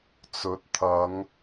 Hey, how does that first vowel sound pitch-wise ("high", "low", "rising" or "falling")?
rising